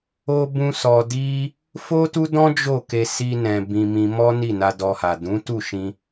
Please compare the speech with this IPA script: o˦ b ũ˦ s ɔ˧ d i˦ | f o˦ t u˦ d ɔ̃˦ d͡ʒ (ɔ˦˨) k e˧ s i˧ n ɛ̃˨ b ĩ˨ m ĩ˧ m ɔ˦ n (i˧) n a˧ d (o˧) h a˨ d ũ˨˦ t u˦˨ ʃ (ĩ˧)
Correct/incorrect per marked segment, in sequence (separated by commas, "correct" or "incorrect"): incorrect, incorrect, incorrect, correct